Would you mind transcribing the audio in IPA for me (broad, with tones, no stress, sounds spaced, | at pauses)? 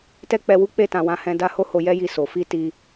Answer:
t ɛ˦ k͡p ɛ˧ w u˦ k͡p e˦˨ t ã˧ w ã˧ h ɛ̃˦ d a˦ h o˦ h o˧ j ɛ˦ j i˧ s o˨ f i˧ t i˧